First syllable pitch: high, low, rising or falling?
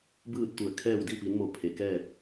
falling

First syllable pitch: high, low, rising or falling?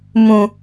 high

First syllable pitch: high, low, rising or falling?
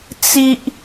high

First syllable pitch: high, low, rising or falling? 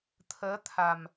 rising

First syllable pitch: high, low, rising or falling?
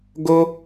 high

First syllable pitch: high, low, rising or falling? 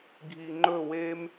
low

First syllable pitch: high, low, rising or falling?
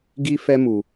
high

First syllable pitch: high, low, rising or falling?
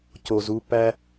low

